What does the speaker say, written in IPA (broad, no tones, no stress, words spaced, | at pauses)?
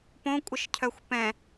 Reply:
põkʷʼəʃcʰœxʷ pɛ̃